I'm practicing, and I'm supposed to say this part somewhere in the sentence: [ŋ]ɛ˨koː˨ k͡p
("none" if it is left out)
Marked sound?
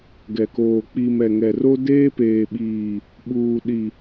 ɡ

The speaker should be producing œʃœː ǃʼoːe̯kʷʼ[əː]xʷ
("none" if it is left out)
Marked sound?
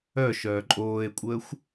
əː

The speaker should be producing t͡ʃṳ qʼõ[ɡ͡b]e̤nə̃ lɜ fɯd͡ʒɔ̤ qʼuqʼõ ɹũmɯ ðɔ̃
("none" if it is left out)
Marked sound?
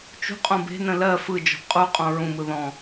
b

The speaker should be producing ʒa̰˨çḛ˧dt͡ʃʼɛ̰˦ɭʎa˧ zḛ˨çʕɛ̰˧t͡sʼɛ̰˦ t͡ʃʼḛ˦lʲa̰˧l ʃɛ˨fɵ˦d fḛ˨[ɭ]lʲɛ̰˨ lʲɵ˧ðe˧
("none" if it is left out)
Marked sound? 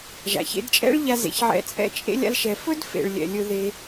ɭ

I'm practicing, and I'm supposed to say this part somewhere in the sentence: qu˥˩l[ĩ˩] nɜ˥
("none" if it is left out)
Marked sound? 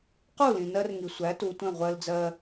ĩ˩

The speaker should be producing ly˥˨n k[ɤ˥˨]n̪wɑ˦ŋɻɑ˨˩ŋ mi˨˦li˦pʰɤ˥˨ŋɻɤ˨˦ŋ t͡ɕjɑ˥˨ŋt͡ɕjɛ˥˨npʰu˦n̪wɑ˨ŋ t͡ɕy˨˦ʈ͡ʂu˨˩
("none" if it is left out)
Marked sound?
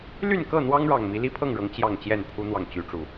ɤ˥˨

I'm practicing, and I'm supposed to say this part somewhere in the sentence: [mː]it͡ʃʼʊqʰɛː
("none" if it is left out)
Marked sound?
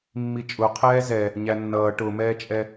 mː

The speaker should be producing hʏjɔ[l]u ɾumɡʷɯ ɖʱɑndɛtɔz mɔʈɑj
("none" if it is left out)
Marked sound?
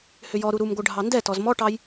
ɾ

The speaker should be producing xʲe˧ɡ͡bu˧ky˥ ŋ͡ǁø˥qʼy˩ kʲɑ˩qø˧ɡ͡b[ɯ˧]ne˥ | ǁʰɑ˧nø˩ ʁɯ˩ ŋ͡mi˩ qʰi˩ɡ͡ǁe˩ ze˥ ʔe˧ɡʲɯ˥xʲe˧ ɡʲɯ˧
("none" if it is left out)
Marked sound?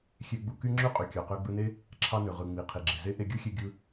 ɯ˧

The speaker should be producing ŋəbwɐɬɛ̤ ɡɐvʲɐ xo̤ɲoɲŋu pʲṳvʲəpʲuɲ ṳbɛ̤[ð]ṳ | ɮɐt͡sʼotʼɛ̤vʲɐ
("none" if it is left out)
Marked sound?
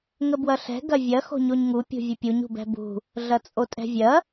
b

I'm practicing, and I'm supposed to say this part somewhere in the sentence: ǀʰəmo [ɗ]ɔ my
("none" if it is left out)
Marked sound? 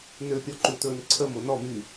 n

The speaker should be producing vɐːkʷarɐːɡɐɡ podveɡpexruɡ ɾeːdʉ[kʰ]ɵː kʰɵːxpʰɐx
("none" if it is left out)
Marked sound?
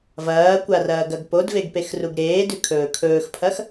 kʰ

